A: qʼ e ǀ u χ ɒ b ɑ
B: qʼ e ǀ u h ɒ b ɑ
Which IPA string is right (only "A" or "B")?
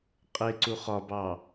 A